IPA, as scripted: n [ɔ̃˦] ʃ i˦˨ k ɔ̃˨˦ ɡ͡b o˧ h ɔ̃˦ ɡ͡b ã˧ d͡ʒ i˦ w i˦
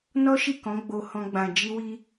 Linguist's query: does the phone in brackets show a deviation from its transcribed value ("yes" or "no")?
yes